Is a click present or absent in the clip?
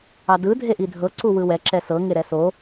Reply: present